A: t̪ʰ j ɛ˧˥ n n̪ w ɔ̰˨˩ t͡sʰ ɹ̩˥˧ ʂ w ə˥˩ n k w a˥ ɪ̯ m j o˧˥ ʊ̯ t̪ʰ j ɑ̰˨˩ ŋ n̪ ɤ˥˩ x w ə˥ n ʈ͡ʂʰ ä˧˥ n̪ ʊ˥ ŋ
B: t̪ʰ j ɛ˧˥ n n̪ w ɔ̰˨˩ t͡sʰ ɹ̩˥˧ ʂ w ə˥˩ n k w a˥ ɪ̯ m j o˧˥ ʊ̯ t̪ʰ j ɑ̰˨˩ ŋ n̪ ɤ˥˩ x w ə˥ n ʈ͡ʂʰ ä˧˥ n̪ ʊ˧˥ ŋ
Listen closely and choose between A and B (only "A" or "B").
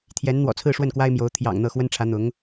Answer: B